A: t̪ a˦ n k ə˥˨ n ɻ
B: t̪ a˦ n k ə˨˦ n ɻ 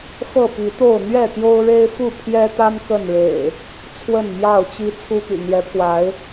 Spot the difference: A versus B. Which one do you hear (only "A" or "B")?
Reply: A